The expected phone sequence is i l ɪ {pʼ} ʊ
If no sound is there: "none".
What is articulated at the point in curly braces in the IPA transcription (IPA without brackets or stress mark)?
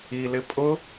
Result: pʼ